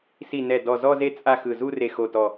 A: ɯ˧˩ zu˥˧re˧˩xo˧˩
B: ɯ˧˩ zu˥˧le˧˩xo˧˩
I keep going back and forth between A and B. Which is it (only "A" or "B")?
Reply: A